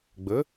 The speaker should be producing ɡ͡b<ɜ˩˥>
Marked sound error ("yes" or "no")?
no